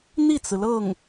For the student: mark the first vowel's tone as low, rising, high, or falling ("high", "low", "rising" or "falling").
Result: falling